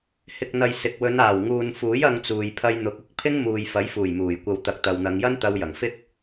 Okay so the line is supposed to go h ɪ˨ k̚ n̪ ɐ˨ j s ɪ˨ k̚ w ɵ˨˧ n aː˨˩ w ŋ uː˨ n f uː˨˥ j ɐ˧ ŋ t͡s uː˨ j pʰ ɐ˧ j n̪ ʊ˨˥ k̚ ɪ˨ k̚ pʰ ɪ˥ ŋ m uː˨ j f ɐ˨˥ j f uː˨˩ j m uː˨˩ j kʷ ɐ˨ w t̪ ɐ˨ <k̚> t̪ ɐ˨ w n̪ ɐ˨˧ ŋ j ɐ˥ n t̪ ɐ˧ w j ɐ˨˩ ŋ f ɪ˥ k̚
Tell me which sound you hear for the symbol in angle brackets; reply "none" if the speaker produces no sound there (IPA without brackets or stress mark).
k̚